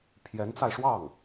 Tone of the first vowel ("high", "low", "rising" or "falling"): rising